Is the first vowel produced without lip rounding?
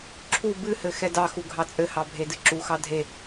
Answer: no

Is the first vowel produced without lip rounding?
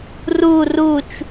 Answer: no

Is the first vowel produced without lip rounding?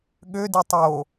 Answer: no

